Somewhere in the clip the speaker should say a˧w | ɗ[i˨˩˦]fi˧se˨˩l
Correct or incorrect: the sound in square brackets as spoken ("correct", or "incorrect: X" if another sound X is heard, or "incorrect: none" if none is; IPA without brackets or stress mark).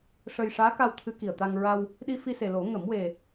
incorrect: i˧